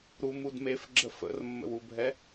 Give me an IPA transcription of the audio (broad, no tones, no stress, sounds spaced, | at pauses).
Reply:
ɾ u m u d m e f ɡ͡ǁ ə f ə̰ r mː ə̰ w u bʱ ɛ